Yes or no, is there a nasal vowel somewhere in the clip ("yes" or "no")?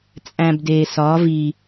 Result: yes